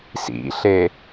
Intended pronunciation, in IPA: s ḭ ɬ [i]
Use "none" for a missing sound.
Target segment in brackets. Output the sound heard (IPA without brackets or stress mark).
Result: e